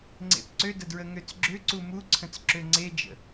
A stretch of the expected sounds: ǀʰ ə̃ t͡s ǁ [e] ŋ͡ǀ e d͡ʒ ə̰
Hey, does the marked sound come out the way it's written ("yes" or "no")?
no